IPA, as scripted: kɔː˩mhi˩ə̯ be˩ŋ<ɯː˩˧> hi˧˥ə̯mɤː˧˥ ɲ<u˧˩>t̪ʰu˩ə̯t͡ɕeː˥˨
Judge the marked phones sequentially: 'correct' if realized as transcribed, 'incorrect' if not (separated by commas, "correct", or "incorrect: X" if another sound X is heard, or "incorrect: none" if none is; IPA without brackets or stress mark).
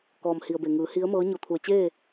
correct, incorrect: o˧˩